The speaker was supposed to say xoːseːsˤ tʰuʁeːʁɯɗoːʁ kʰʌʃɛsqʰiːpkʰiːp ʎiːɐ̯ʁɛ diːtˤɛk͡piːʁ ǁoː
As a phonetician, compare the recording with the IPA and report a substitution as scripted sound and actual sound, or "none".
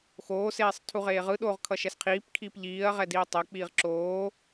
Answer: none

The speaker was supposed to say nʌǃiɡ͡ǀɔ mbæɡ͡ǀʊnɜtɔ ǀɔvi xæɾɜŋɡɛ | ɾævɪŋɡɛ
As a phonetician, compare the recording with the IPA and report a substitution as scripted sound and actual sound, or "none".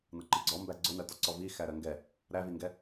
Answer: ɪ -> i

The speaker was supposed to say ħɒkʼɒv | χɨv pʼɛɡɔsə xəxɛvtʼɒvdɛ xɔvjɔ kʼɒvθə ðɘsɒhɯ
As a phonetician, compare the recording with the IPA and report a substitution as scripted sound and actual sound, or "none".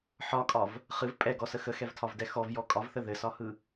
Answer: tʼ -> tʰ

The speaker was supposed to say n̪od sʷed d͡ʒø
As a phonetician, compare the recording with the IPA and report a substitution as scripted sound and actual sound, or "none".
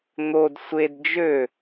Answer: none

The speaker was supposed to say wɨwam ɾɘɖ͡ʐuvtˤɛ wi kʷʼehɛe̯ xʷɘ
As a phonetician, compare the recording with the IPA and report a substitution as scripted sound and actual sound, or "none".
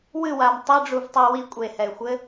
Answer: ɾ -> tˤ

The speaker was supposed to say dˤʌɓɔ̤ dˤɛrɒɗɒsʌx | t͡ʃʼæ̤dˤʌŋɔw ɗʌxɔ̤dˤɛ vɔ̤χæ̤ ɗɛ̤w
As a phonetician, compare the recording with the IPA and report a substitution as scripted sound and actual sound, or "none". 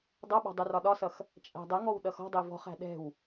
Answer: none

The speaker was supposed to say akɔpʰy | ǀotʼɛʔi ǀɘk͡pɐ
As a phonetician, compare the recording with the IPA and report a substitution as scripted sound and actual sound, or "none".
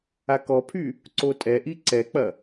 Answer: ɘ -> ɛ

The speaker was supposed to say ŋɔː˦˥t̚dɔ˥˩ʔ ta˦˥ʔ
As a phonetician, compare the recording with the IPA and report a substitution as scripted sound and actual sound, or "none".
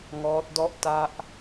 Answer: none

